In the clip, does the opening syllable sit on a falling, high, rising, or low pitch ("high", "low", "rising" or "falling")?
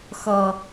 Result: high